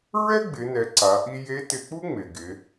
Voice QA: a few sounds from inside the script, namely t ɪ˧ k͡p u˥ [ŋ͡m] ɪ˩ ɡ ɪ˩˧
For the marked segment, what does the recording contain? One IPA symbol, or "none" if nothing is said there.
ŋ͡m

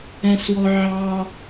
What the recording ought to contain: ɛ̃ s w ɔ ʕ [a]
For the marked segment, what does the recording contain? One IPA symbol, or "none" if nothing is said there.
ɑ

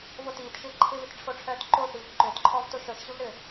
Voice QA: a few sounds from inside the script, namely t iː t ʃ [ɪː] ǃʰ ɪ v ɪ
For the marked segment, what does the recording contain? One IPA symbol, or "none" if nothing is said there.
ɪː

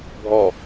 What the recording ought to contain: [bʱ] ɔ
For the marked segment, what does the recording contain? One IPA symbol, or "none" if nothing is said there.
bʱ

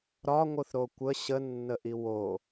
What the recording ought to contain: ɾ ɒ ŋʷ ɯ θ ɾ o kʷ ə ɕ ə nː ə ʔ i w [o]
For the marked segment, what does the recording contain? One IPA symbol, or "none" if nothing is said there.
o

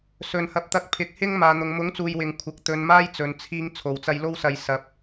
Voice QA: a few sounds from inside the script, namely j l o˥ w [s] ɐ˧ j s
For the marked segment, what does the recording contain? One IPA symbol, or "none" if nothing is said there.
s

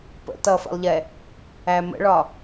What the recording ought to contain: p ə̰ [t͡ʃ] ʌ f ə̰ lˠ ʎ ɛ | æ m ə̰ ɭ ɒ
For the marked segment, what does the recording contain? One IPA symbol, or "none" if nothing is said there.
t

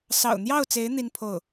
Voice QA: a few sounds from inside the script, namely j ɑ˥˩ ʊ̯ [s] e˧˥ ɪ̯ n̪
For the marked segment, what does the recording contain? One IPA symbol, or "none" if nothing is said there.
t͡s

